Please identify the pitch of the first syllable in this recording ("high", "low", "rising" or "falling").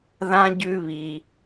high